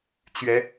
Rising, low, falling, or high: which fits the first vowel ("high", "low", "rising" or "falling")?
rising